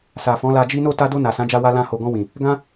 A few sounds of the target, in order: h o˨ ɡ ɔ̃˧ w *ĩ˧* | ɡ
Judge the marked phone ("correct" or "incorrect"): incorrect